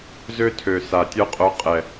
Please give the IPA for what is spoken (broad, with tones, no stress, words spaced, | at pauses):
zø˥tʰø˨˩sa˨˩ tʲœ˥qʼœ˧˥ qʼɛ˨˩